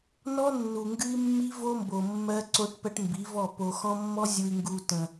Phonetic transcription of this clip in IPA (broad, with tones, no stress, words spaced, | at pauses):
nɔ˦nːu˨ŋɡɨ˦i̯mːi˦ vo˦mbo˨ mːɜ˦ ǀo˦ʈpɜ˦ʈmbi˨˦vɔ˦˨ po˨xɔ̃˦mːɔ˦ zʲu˨i̯ŋɡu˨ tə̃˨